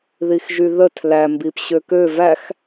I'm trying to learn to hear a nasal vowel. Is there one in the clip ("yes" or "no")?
no